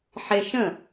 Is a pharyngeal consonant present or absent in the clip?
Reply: present